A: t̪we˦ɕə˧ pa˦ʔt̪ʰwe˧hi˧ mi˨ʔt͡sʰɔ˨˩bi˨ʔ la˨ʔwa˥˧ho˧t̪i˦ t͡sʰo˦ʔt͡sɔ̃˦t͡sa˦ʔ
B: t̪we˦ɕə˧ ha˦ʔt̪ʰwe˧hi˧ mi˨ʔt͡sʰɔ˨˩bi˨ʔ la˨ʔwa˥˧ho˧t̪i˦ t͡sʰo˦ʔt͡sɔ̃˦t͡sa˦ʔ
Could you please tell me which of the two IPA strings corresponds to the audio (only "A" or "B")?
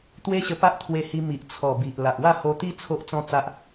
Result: A